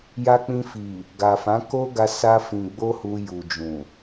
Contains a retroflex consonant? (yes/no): no